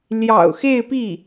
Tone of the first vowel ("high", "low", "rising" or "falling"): low